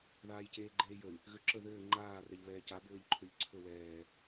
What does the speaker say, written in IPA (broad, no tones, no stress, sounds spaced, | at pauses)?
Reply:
ð aː j c eː ɡ͡ǃ eː j ə y̯ | ɣ ø ǁ ə ð ɘː ŋ͡ǃ aː r ɛ ʎ β ɛː c a b ɘː ʎ ǃʰ ø ʎ ǀʰ ɵ w ɛː